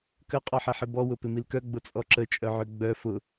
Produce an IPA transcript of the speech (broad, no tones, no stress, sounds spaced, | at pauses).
k ə qʼ ɔ ħ ɛ ħ ɪ b ɔ w ʊ p ɪ m i l k œ ɡ͡b ʊ t͡sʼ ɔ ǁ ə t͡ʃʼ œ ʕ ø ɡ͡b œ f ʊ